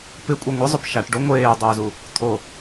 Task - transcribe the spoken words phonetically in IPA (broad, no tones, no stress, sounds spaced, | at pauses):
p ɪ kʷʼ i ŋʷ ɪ zˤ ʊ p ʃ a ʈ ɖ o ŋʷ eː dˤ ʊː z u | t̪ʰ o